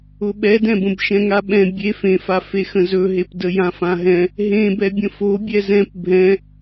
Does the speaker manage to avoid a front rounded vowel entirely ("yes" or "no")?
yes